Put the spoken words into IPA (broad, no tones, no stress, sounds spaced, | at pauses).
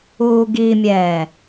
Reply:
uː ɡ i mʲ ɛː